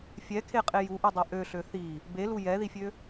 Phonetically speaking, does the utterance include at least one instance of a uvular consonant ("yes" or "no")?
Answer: yes